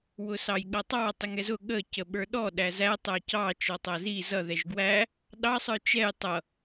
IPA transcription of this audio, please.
w ʊ s ɑ j ɠ ʌ tˤ ɑ tˤ i ŋ ɛ z ʊ ɠ ə c ə ɓ ə˞ ɗ ɔ ɗ æ z æ tˤ æ c ɑ t͡ʃ ɔ tˤ æ z i z ʌ ð ɛ ʒ ɡ w æ | ɗ ɑ sˤ ə˞ t͡ʃ ɛ j tˤ ʌ

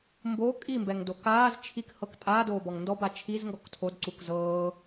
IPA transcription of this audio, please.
m b o kʼ i m b ɛ ŋ d o k aː z t͡ʃʰ i k h ɤ k tʼ aː d oː b ɔ ŋ n d ɔ b a t͡ʃʰ i z ŋ ɡ ɔ k tʰ o d ǀ u k z ɤː

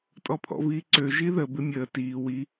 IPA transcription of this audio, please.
tʼ ɔ pʰ ɔ̰ v iː ǀ ø ʒ i ð ə b ɪ mʲ əː t iː w i

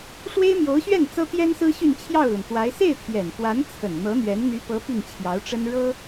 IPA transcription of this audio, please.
ʂ w e˥ ɪ̯ m j o˧˥ ʊ̯ ɕ ɥ ɛ˥˩ n t͡s ɤ˥ t̪ j ɛ˥ n s ɹ̩˥ ɕ y˥˧ n t͡ɕʰ j ɑ˥˩ ʊ̯ l ə˩ n t̪ w a˧˥ ɪ̯ s e˥˩ ɪ̯ t̪ʰ j ɛ˨˩ n f w a˧˥ n t͡sʰ ə˨˩ n n̪ ɤ˧˥ n̪ ɥ ɛ˧˥ n n̪ y˧˥ p ɤ˧˥ p i˥˩ ŋ t͡ɕʰ j ɑ˧˥ ʊ̯ ʈ͡ʂ ə˥ n ɻ ɤ˥

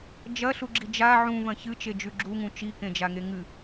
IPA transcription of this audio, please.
d͡ʒ ɐ ɬ u ɡ͡ǁ i d͡ʒ a ʕ ũ v ɐ̃ ç ɨ t͡ʃ e d͡ʒ ʉ ɡ͡ǁ u ŋ ũ t͡ʃ i k ẽ d͡ʒ a ŋ e ŋ ɨ

